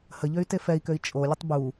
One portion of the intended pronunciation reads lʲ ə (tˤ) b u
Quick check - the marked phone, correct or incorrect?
correct